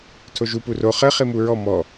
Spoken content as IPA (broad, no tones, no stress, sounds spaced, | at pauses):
tʰ o ʒ u p u r o χ ɘ χ i m u ɹ ɔ m ɔ